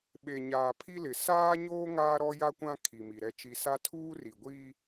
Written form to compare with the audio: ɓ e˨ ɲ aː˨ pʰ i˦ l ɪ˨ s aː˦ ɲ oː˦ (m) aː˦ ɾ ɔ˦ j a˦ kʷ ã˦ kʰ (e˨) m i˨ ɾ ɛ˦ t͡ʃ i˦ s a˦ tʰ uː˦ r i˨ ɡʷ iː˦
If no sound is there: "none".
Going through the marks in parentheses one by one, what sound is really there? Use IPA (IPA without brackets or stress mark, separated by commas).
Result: ŋ, i˨